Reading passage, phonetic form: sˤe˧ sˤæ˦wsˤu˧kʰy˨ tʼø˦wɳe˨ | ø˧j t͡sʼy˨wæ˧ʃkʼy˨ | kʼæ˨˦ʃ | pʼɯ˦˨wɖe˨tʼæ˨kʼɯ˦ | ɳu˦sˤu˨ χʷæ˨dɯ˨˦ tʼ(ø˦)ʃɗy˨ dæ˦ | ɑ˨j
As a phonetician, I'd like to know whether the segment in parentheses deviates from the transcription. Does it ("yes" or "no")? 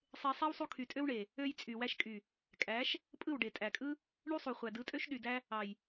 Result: no